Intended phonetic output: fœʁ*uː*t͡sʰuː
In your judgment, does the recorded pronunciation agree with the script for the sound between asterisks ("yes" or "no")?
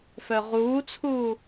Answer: yes